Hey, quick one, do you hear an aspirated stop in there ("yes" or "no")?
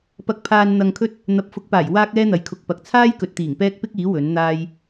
yes